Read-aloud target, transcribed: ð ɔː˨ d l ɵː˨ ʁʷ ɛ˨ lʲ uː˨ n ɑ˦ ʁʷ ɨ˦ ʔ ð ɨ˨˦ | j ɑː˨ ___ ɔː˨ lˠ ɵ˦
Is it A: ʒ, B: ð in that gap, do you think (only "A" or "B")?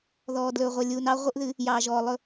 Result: A